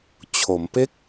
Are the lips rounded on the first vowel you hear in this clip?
yes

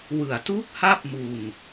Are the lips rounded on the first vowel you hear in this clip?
no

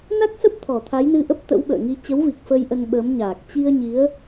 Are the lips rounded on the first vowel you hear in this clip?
no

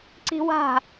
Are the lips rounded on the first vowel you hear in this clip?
no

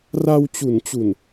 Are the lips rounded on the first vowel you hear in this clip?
no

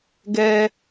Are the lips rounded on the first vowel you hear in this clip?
no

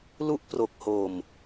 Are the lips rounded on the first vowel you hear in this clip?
yes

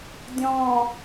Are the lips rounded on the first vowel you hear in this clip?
yes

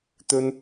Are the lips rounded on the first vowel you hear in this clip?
yes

